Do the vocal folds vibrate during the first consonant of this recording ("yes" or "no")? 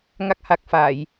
yes